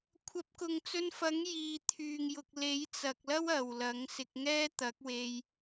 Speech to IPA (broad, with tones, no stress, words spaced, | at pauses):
kʷʰɐ˨˥p̚kʊ˨ŋt͡sɵ˧nfɐ˨˥ŋ jiː˨t̪ʰyː˨ŋ jʊ˨k̚le˨˥jt͡sɐ˨k̚lɐ˥w ɐ˨wlɐ˨˥ŋsɪ˧k̚ ŋɛː˥t̪ɐ˨˥k̚we˧j